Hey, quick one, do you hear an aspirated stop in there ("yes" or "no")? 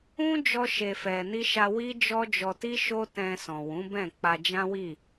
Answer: no